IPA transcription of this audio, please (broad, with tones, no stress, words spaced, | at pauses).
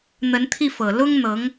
n̪ə˧˥nt̪ʰi˥˩fɤ˨˩ lʊ˥ŋn̪ɤ˧˥ŋ